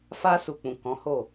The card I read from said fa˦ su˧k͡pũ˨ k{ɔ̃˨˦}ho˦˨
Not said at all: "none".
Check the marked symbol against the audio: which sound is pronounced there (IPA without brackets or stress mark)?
ɔ̃˨˦